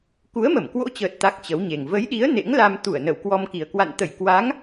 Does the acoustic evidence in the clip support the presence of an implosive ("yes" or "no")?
yes